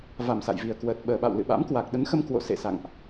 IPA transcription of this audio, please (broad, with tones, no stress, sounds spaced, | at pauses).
v a˨˩ m s a̰˧˨ j v i˨˩ ə̯ k w əː˨˩ t̚ ɓ əː˨˩ ɓ a̰˧˨ w l ɨ̰˧˨ ɓ a̰˧˥ m k w a˨˩ k̚ ɗ ə˨˦ n x ə˧ m k w o̰˧˨ s ḛ˧˨ s a̰˧˨ ŋ ʔ